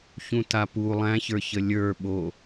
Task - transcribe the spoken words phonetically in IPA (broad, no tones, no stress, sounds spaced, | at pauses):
ç ũ t a p u lˠ æ̃ ç ə˞ ç ə lʲ ə˞ ɓ o